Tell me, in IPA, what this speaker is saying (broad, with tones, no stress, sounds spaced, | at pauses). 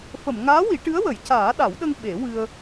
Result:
f ə˨˩˨ m ŋ aː˧˥ w i˨˩˦ ʈ ɨ˧˥ ə̯ w ə˨˩˦ j c aː˨˩˦ ɗ a˨˩˦ w ɗ ə˧ ŋ ɓ e˨˩˦ w ɨ˧ ə̯